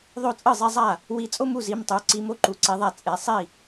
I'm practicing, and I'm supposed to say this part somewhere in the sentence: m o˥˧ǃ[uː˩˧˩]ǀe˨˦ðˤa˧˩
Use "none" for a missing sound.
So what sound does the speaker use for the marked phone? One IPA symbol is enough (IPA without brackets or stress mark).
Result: u˩˧˩